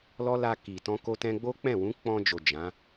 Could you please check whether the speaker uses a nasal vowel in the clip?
yes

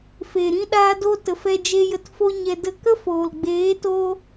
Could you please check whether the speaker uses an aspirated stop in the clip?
no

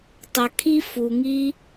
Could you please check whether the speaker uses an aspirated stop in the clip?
yes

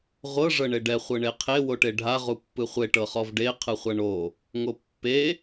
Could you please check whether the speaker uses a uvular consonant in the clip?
yes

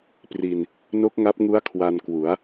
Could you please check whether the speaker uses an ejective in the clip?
no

